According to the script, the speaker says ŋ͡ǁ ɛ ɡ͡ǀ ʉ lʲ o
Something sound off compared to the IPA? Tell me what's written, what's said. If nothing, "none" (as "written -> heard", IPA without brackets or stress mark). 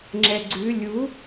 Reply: o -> u